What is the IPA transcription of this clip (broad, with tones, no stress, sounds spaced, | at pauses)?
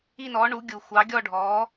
i˥˧ n ɔ˨˥ ɳ u˨˥ ɡʲ u˨˩ xʷ ɑ˨˥ ɡʲ ɔ˥˧ ɖʱ ɔ˨˥